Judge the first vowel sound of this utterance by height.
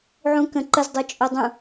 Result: high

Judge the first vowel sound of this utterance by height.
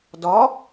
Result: low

